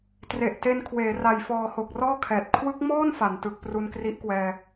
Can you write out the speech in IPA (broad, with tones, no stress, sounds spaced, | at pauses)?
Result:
t r e˨˩ ʔ t e˧ n kʰ w eː˩˦ r a˨˩ j f ɔː˨˩ h o˨˩ k̚ r ɔː˥˩ kʰ ɛː˨˩ t̚ kʰ w ɯ˦˥ k̚ m ɔː˥˩ n f a˩˦ n t ɯ˨˩ k̚ p r u˧ n k r i˦˥ ʔ k w ɛː˧